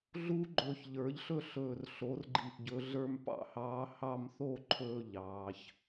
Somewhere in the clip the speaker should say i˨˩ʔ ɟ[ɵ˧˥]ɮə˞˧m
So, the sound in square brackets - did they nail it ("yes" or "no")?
no